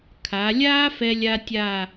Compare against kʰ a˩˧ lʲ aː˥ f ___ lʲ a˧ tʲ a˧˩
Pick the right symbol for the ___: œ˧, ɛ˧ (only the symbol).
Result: ɛ˧